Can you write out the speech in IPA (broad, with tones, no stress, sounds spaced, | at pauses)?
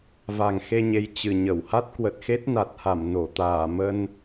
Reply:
v a˨˩ ŋ x e˧ ɲ e˨˦ j t͡ɕ ɨ˨˩ ɲ ə˧˩ w h a˦˥ t̚ k w ə˨˩ t̚ x e˦˥ t̚ n a˨˩ t̚ h a˧˩ m n o˧˩ t̪ aː˧˩ m ə˧ n